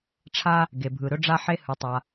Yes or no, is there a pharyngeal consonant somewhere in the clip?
yes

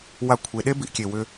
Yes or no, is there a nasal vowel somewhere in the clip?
no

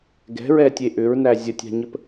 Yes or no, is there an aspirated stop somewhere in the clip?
no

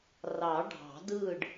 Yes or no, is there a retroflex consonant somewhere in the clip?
yes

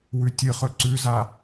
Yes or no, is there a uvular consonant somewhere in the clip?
yes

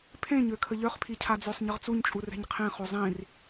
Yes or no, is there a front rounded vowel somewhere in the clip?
yes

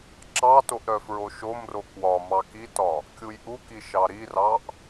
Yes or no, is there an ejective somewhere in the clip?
no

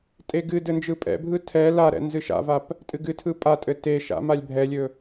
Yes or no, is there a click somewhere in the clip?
no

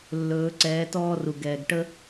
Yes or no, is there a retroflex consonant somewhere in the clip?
yes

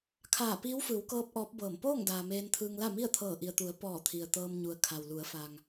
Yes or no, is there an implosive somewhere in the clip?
no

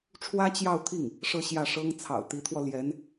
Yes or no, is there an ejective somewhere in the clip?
no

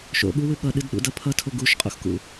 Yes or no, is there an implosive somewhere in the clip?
yes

